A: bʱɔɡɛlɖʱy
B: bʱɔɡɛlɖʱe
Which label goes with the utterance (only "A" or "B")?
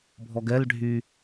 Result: A